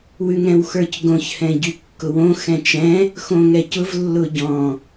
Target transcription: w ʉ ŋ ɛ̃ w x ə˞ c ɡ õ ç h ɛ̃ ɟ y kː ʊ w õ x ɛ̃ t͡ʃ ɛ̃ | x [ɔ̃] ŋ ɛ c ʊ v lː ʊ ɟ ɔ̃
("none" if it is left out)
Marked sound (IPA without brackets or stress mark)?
õ